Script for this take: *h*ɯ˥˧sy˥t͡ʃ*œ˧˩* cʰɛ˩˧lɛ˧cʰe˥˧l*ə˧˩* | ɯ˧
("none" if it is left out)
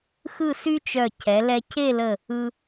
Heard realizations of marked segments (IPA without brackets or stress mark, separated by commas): x, œ˧˩, ə˧˩